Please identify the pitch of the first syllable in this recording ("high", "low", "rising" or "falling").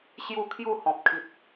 falling